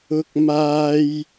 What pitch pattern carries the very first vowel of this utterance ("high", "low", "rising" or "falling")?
high